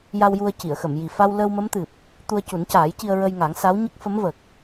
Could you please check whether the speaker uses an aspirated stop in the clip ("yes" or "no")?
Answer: no